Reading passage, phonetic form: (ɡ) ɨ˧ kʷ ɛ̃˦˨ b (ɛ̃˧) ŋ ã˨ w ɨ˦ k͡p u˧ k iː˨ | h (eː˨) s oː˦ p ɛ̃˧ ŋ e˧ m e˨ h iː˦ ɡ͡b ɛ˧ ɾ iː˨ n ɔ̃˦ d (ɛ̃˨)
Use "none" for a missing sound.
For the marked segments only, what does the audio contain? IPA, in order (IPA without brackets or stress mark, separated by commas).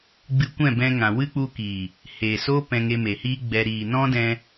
ɡ͡b, ɛ̃˧, eː˨, ɛ̃˧